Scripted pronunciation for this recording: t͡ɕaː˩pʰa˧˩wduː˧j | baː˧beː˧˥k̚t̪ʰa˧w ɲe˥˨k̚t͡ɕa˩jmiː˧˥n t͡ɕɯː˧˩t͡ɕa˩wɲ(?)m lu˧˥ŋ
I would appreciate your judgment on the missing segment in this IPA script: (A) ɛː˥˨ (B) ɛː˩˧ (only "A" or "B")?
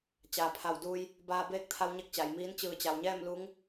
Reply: A